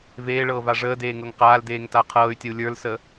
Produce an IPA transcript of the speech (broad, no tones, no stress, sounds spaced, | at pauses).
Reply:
v eː ɭ ɤː v a ʐ əː d eː ŋ ɤ ŋ q aː l d eː ŋ t a qʰ ɤː y̯ tʲ ə u̯ lʲ ə˞ l s ə